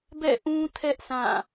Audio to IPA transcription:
b ɛ̰˦˨ ʔ ũ˦ tʰ ɛ˦ ʔ sʰ ã˦˨

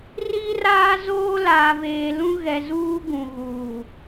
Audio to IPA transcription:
r i˦ r aː˦ z oː˦ l aː˨ v eː˨ l ũ˦ ɣ ɛ˨ z uː˦ ɡ ũ˨ ɣ uː˨

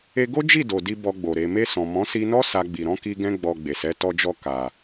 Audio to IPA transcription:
e˧ ɡ o˦ d͡ʒ i˦˨ d o˨ d i˧ b ɔ˧ ɡ͡b o˨ ɾ e˨ m e˧ s ɔ̃˨ m ɔ̃˨˦ s i˧ n ɔ˦ s a˧ ɡ͡b i˨ ɾ ɔ̃˨˦ k i˧ ɡ ɛ̃˧ ɡ͡b ɔ˨ ɡ͡b e˨ s ɛ˨˦ t ɔ˧ d͡ʒ ɔ˧ k a˨

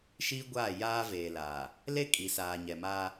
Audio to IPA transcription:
ʃ iː˦ ɡʷ aː˦˨ j aː˦ v eː˨ l a˨ | l e˦ kʼ i˨ s aː˨ ɲ ɛ˨ m aː˦

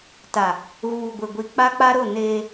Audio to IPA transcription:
t a˨ | ɣ uː˨ ɡʷ ɪ˨ ɡʷ i˨ k͡p a˦ k͡p a˦ ɾ ʊ˦˨ n eː˦

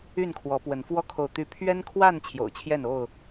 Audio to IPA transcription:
y˥˨ n kʰ w ɔ˨˦ p w ə˨˦ n f w ɔ˦ kʰ o˨ ʊ̯ t̪ y˨˦ pʰ ɥ ɛ˦ n kʰ w a˥˨ n t͡ɕʰ j o̰˨˩ ʊ̯ t͡ɕʰ j ɛ˥˨ n o˥˨ ʊ̯

